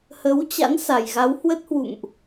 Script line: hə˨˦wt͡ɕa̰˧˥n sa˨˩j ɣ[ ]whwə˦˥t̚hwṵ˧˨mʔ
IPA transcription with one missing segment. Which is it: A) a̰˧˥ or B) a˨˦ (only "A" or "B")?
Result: B